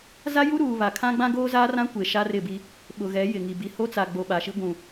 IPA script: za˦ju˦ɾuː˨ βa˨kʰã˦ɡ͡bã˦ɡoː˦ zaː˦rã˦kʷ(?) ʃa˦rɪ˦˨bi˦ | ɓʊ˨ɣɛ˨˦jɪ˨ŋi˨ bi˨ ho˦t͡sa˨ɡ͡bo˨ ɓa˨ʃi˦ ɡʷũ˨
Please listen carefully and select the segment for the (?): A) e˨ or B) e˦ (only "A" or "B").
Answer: A